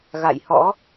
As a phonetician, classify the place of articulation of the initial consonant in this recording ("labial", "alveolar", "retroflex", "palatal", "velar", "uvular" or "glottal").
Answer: velar